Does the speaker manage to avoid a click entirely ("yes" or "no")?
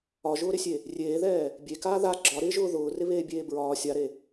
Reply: no